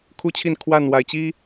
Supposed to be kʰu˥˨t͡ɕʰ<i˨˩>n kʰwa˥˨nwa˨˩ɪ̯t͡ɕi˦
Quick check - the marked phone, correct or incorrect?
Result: incorrect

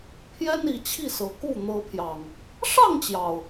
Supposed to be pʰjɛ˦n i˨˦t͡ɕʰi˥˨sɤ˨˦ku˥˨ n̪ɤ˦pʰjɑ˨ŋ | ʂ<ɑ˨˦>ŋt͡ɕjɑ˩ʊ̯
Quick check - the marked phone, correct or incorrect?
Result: incorrect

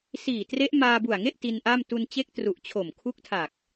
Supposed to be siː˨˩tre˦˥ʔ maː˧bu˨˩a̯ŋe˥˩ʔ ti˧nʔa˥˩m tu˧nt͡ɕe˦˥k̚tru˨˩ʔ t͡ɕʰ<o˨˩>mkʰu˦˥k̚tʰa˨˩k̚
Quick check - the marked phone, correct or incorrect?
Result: correct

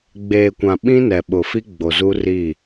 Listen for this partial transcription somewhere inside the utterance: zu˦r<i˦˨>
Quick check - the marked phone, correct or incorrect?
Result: correct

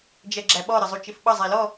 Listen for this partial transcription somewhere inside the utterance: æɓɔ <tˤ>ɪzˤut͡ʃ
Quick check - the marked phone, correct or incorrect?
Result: incorrect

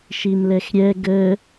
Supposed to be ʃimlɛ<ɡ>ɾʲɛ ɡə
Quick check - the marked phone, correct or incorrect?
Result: incorrect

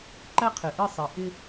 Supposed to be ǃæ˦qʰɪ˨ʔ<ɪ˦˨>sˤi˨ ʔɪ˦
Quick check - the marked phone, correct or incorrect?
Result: correct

